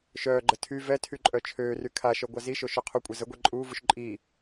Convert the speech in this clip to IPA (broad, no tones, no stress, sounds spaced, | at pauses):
ʃ œː ɡ͡ǃ ə tʰ y v ɛ tʰ y ǃʼ œ t͡ʃʰ øː r y kʰ a ʃ œ ɡʷ a z i ʃ o ʃ ø qʰ u kʷʼ e z ə ɡʷ e ǃʼ uː v u ʃ ǃʼ i